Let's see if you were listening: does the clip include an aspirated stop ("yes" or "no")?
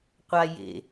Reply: no